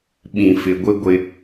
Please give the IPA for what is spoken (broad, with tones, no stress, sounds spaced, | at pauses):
ɓ ĩ˨ f ɪ˨ ɡʷ ɪ˦ ɡʷ ɪ˦